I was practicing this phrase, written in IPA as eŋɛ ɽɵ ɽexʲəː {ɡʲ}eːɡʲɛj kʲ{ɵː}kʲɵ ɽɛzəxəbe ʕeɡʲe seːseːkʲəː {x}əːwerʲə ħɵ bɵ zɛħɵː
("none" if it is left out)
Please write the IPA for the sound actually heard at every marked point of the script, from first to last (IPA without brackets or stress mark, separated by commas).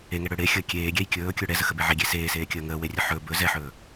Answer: kʲ, ɵː, ŋ